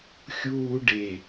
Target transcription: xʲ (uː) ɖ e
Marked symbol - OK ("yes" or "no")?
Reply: yes